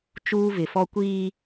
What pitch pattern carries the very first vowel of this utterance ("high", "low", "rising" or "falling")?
high